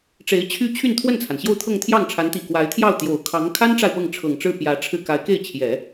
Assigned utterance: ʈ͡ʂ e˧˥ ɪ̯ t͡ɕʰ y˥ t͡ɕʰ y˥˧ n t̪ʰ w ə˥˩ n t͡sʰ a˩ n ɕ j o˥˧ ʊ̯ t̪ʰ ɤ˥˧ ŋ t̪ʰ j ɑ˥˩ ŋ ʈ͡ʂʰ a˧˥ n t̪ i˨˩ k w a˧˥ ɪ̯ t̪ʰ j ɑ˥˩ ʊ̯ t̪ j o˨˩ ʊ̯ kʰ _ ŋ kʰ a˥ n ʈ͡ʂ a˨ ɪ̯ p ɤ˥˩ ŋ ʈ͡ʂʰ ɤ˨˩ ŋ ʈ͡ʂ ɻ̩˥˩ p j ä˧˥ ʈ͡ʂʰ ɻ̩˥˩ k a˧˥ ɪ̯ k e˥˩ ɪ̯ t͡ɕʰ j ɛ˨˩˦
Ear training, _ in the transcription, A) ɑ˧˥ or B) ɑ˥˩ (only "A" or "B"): A